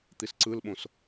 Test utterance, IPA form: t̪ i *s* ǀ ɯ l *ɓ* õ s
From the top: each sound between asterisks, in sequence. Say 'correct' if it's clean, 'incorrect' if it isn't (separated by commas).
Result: correct, correct